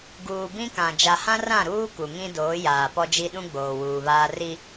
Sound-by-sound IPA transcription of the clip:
ɡ uː˨ b ĩ˦ k ã˨ d͡ʒ a˨ h ã˦ r ã˦˨ ɾ uː˦ k u˨ ŋ ĩ˦ d oː˨˦ j aː˨ p ɔ˦ d͡ʒ i˦ ɗ ũ˦ ɡ͡b oː˨ w uː˨ β aː˦ r i˦

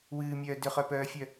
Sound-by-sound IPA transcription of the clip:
w ɨː mʲ œː d ʏ χ œ p œː fʲ œ

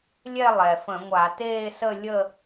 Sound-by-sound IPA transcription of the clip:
lʲ ɛ˥˧ lˠ ɛ˩ f ə̃˧˩˧ ŋʷ a˧˩˧ t eː˥˧ s ə˥˧ lʲ ə˥˧

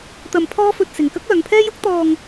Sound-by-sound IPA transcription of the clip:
t̪ ɐ˧ m pʰ ɔː˥ f ɵ˧ t̚ s ɪ˨ ŋ k ɐ˥ k̚ œː˨˧ ŋ pʰ ɛː˥ j ʊ˥ k̚ t̪ ɔː˧ ŋ

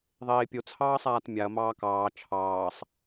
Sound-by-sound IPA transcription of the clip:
ðˤ eː pʲ o t͡sʰ ɑː sˤ aː t mʲ a ɐ̯ m ɑː k ɑː t͡ʃʰ ɑː sˤ

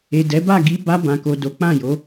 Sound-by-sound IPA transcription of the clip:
e˨ d ɛ˨˦ b a˦˨ ɡ i˧ b a˧ b ã˨ k o˨ d o˨˦ k͡p ã˦˨ j o˨˦

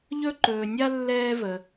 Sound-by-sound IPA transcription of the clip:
ʎ ɵ˦ ǃ ɵː˨ nʲ a˥ lː ɛː˦ v ə˨

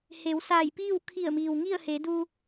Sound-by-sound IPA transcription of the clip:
h e˩˧ w s aː˧˩ j p iː˥˨ w kʰ i˧˩ ə̯ m iː˩ w ŋ i˥˨ ə̯ h e˩˧ d u˧

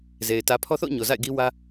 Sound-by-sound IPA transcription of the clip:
z e˨ ɪ̯ t ä˨ pʰ ɔ˦ θ o̰˦˨ ʊ̯ ɲ o˨ z a̰˦˨ ɪ̯ ɡ i˦ w ä˦

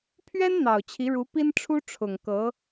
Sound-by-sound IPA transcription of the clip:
pʰ ɥ ɛ˥ n n̪ ɑ˨˩ ʊ̯ t͡ɕʰ i˧˥ ɻ u˧˥ p i˥ n ʈ͡ʂʰ u˥ ʈ͡ʂʰ ʊ˨˩ ŋ k ɤ˧˥

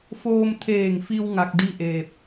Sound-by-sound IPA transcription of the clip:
f oː˧ m t̪ʰ eː˧˩ ŋ f i˧ w ŋ a˧ k̚ d i˥˨ ʔ eː˧˩ p̚

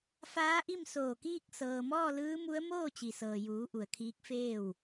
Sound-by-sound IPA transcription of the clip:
f aː˧˥ ʔ i˥˨ m s oː˧˩ k iː˥˨ k̚ s ɤː˩ m ɔː˥˨ l ɯː˧˥ m u˧˥ ə̯ m oː˥˨ t͡ɕ i˩ s ɤː˩ j uː˩˧ ʔ u˩ ə̯ kʰ iː˧˥ k̚ f eː˥˨ w

